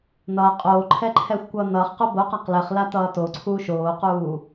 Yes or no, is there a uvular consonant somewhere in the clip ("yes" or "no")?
yes